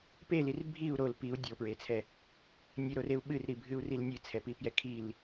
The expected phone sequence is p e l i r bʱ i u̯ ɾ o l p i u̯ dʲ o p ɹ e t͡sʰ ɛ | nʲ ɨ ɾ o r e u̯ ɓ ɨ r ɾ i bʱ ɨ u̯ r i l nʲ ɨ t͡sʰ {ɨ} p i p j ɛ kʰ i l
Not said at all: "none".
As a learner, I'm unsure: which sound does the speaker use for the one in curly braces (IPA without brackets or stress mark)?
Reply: ɛ